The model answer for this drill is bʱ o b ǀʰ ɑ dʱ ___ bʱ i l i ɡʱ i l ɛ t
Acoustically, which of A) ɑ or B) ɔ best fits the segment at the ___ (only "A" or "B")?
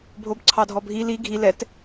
B